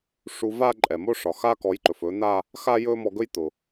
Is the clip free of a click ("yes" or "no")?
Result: no